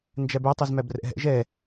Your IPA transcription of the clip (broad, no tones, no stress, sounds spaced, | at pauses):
n d͡ʒ æ b ɛ tˤ i z m æ b r ɛ̰ ɦ ɛ̰ ʒ ɛ